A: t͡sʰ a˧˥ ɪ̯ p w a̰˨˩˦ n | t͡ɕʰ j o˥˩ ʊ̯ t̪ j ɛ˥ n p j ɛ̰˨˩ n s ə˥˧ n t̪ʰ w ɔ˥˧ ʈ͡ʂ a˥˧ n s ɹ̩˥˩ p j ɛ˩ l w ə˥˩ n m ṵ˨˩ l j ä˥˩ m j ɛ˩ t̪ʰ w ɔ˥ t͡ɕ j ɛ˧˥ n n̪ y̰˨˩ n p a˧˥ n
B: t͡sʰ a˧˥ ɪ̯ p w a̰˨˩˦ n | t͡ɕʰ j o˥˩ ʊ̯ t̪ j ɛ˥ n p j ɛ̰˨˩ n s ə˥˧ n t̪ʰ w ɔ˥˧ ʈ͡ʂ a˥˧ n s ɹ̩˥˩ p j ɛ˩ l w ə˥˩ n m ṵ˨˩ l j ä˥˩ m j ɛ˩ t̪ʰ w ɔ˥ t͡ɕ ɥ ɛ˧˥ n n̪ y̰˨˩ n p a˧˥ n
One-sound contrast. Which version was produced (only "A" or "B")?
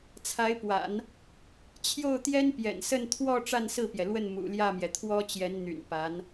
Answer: A